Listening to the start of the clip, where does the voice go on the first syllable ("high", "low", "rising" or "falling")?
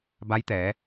rising